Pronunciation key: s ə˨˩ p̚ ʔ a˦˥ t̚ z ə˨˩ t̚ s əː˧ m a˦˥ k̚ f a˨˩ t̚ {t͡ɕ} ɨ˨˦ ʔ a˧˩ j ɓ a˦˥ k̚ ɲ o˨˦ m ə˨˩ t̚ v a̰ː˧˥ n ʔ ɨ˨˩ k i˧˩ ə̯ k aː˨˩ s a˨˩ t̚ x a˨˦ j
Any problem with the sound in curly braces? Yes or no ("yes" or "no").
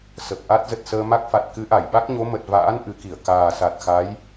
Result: yes